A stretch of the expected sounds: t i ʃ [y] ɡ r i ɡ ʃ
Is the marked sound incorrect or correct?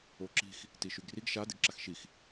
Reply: correct